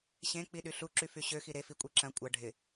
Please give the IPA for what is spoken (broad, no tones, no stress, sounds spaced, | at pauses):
ɕ ẽ k͡p i ɗ y ɬ u ǁ y f y ɕ ø x i ɾ e f i kʷʼ i ǁ ɐ̃ kʷʼ ɐ ɖʱ ɪ